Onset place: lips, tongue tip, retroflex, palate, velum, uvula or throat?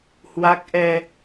throat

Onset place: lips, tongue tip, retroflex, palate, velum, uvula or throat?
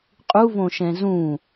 uvula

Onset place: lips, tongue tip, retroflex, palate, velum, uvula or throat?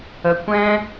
velum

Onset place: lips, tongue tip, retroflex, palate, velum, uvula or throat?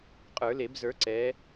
uvula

